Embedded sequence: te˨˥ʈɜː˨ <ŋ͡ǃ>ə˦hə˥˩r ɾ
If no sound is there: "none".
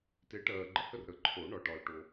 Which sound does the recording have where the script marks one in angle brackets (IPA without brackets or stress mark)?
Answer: ɡ͡ǃ